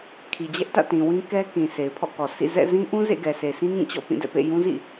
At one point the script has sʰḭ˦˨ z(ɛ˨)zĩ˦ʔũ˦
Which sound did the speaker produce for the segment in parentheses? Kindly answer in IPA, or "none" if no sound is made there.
ɛ̰˦˨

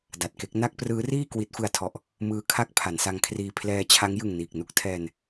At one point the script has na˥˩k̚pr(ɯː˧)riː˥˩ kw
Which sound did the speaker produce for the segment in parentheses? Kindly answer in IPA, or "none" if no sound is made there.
ɯː˦˥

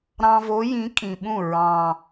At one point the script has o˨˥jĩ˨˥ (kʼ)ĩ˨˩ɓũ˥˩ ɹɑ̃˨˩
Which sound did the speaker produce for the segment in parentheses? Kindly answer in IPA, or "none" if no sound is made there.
kʼ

